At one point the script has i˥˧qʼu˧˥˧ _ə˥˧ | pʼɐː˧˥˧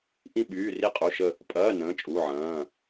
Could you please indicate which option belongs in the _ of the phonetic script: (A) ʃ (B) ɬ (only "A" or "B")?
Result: A